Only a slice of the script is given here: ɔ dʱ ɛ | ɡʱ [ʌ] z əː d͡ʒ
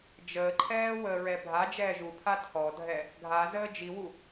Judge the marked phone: incorrect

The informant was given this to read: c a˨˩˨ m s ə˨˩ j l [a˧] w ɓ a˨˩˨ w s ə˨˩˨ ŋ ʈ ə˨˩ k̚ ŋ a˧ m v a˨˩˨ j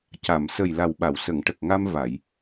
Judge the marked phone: incorrect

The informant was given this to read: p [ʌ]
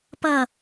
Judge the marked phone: correct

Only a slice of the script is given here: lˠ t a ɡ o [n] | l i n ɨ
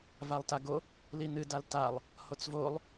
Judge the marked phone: incorrect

